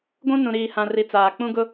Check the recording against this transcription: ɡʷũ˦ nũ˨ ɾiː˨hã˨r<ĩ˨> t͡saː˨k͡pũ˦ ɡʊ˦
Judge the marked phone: incorrect: i˨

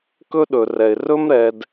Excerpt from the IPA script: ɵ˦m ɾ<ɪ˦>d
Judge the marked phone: incorrect: ɛ˦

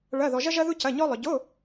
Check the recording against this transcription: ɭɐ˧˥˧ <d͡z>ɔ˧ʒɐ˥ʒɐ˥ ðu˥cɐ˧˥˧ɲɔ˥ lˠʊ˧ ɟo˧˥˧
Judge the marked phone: incorrect: ð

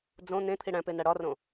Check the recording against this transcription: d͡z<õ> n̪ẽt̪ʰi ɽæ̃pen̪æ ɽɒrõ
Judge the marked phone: correct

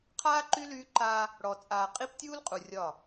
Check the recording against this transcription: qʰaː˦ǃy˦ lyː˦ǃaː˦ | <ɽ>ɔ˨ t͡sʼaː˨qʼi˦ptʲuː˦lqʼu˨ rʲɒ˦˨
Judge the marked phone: correct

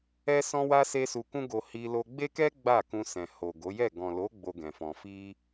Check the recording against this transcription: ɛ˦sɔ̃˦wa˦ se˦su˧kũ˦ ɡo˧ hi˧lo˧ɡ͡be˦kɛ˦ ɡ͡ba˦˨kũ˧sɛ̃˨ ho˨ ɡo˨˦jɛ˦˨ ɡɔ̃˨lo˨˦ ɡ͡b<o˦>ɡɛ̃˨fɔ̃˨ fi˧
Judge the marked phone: incorrect: o˧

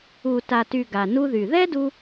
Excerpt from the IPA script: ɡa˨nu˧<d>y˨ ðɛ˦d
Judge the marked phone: incorrect: ð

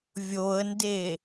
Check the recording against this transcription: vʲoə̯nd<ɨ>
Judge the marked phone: incorrect: e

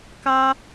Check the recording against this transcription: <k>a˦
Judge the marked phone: correct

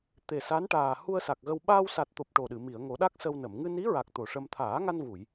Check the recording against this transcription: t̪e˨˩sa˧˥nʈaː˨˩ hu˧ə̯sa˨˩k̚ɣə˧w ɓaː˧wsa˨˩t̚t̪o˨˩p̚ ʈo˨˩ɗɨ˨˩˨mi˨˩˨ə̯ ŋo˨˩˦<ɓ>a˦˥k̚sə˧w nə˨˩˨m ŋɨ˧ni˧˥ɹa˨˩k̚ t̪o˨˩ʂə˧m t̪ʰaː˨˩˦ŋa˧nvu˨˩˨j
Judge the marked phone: incorrect: ɗ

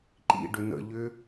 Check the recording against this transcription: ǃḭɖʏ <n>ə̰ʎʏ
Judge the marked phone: correct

